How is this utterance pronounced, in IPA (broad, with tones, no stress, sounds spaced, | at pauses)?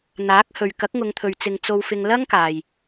n̪ aː˨˥ k̚ h ɵ˨ ɥ k ɐ˨˥ k̚ ŋ ʊ˨˧ ŋ t̪ʰ ɵ˨ ɥ t͡s ɪ˨ ŋ t͡s o˧ w f ɪ˧ ŋ l ɐ˥ ŋ k aː˨ j